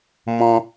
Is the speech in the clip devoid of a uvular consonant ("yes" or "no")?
yes